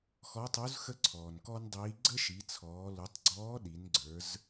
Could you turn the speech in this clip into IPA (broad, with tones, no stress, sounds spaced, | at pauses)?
x ɔ˧˥ tˤ u˧˥ z x ə˥ ǀʰ ɔː˩ n k ɔ˥ n dˤ iː˧˥ ɡ͡ǀ ə˥ ʃ i˩˧ t͡sʰ ɔː˩˧ l u˩˧ tˤ ɡ͡ǀ ɔː˧˥ ɗ i˩˧ n ɡ͡ǀ ə˞˩˧ z